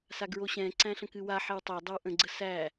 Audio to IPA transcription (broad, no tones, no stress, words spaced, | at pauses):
saɡɹoɕɛ̃ ǀæ̃ɬə̃kɨwa ħɛwtˤa dˤəwʔə̃ ɡ͡ǀəsæ